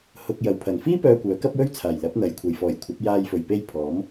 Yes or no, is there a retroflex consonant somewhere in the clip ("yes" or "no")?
no